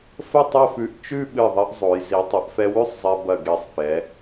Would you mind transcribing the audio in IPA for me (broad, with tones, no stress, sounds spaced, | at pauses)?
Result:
f ə˥˧ tˤ o˥˧ f ʉ˧ ʔ t͡ʃ ʉ˥˧ ɓ ɨ˧˩ ðˤ ɐ˧ ʔ zˤ o˩˧ j z i˩˧ tˤ ɐ˩˧ ʔ f ɛ˧ w ʉ˥˧ sˤ zˤ ɛ˧ b ɐ˧˩ ɡ e˧˩ sˤ f ɛ˩˧